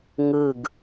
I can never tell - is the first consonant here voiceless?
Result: no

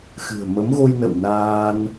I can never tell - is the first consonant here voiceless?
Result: yes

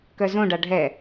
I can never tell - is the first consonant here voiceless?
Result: yes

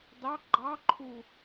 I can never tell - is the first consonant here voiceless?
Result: no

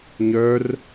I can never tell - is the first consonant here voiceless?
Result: no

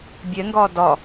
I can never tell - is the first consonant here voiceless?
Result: no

